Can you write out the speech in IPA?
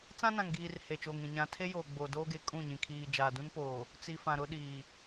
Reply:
t͡s ã˦ n ã˨ ŋ ɡ iː˨ r h e˨ t͡ʃ oː˨ ŋ ĩ˨ ɲ ã˨ tʰ e˦ j oː˨ ɡ͡b o˨ d oː˦ ɡ e˨ kʼ ũ˦˨ ɲ ĩ˨ kʰ iː˨ d͡ʒ aː˨ d ũ˦ n p oː˨ | t͡s i˨ f ã˨ ɾ ʊ˦ ɗ iː˨

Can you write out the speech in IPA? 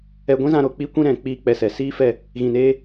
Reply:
ɛ˧ ɡʷ ĩ˦ z ã˧ ɾ o˨ k͡p i˦ kʷ ĩ˦ ɾ ɛ̃˨ k͡p i˦˨ k͡p ɛ˧ s ɛ˨ s iː˦ f ɛ˦˨ | ɣ ĩ˨ n eː˧

